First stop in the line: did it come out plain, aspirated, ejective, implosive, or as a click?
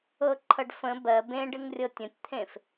click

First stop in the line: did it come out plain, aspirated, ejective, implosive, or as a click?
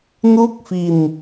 plain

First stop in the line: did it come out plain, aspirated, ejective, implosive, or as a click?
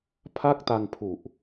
aspirated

